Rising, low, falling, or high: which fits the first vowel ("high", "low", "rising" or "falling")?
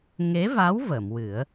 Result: rising